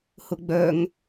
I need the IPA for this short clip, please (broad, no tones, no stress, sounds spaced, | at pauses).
h ʊ ɡ͡b œ ŋ